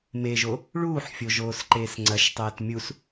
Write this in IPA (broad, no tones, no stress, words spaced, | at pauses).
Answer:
meʒo | ɭuːħfʲoʒoːsǃeːs ŋ͡ǀɐʃtˤɛːt mʲus